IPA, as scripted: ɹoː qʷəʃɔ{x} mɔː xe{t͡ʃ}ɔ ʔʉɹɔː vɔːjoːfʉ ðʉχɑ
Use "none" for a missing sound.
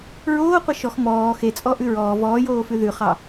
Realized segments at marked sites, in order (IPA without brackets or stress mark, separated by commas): x, t͡sʼ